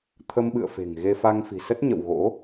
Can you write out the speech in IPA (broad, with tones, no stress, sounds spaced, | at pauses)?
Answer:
t̪ʰ ə˧ m ɓ ɨ̰˧˨ ə̯ f e̤˨˩ ŋ ɣ e˧ f a˧ ŋ f i̤˨˩ s ə˦˥ t̚ ɲ ə̰˧˨ w ɣ o̰˧˥